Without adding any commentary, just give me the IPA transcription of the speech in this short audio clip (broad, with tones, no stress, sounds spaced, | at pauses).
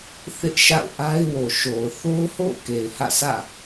θ ɪ˦ ʔ ʃ a̰˦˨ ʊ̯ ʔ a˦ ɪ̯ w o˨ ʃ o˨ ʊ̯ θ o˦ ʊ̯ h o̰˦˨ ʊ̯ k e˨ ɪ̯ h ä̰˦˨ s ä̰˦˨